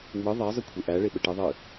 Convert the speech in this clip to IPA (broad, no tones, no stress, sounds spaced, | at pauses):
ŋ͡m ɯ ðˤ e zˤ ɨ kʷʰ e ʔ æ ɭ e ɓ ə ʈ ɨ ðˤ ɨ